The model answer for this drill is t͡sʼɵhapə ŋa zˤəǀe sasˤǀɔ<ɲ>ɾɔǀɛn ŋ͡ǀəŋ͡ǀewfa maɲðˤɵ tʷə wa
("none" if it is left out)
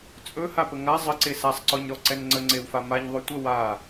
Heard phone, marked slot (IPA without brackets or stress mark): ɲ